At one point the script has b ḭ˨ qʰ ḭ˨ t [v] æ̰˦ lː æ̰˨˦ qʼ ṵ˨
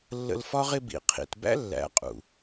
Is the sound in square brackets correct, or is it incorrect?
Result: incorrect: b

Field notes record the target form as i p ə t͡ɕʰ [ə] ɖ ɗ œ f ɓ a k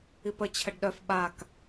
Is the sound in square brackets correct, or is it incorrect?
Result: correct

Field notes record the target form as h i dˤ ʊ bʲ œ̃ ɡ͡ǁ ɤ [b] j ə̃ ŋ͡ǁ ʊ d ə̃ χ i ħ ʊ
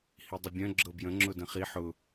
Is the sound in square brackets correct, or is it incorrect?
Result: correct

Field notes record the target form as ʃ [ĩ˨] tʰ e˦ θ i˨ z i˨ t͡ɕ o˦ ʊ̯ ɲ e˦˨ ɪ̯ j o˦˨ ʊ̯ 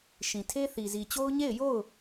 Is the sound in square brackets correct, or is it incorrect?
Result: correct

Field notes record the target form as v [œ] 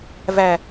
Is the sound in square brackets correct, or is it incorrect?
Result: incorrect: æ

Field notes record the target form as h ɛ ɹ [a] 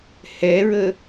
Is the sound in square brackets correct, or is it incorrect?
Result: incorrect: ə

